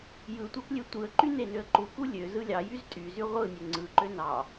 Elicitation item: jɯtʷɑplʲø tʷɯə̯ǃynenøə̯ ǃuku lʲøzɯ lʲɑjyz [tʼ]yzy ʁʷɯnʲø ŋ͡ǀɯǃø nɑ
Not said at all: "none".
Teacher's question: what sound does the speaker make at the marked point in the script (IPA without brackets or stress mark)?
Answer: tʼ